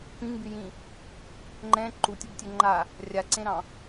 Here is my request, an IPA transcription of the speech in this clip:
p ĩ ŋ b y j ĩ | ŋ͡ǃ ɛ̃ ǃ u tʲ o b tʲ ø ŋ͡ǃ a | rʲ a ǀ ẽ ɾ ɑ̃

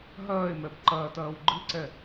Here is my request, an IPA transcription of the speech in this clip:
ɦ ɐː e̯ m ɛ b ǃ ɐː t ɐː w ɡ͡ǃ ɨ ǀ ɛ

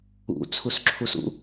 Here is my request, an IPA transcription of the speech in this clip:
ṵ t͡sʰ u s ǁʰ u s ṵ

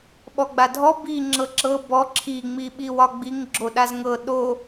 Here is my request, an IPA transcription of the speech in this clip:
ɓ ɔ ɡ͡b a dʱ ɔ b i ŋ͡ǁ ɤ ǁ ɤ b ɔ ǁʰ i ŋ͡m i ɓ i w ɒ ɡ͡b i ŋ ɡ͡ǁ o ɗ a z ŋ ɤ ɗ o

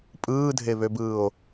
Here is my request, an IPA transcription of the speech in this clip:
pʼ ɯː dʱ e β ø b ɯː o̯

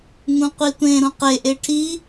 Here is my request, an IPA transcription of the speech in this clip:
ŋ ũ qʷ i tʷ ẽ ɾ ũ q e ʔ e ʈʰ i

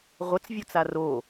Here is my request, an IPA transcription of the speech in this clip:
ʁʷ ə t͡s vʲ o t͡s a r o

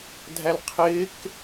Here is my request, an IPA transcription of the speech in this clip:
dʱ æ l qʰ ɪː k

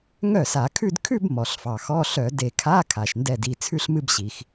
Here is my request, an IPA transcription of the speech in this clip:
ŋ œ˥˩ s a˧˩˧ kʰ ʉ˥˧ d kʰ ʉ˥˧ b m ɔ˩ ɬ f ɑ˩ x ɔ˧˥˧ ɬ œ˧˩˧ d e˧˩˧ kʰ a˧˥˧ kʰ a˩ ʃ n d ɛ˥˩ d i˥˩ t͡sʰ ʉ˥˧ ɬ m ɨ˥˧ b ɕ i˩ x

